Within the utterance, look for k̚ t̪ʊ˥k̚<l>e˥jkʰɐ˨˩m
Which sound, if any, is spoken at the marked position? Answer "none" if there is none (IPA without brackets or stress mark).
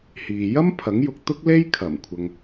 l